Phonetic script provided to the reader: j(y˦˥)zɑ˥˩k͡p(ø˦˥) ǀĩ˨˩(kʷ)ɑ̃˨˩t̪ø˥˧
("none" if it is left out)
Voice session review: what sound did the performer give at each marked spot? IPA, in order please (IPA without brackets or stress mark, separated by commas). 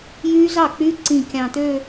yː˦˥, y˦˥, kʲ